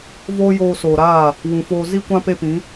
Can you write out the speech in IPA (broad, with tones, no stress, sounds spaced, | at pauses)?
v oː˦ j oː˧ s oː˨ ɾ aː˦˨ | w ũ˨ f oː˧ z i˦ kʷ ã˦ p e˦ p ĩ˨˦